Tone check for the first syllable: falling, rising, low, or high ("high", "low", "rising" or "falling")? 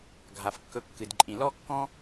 low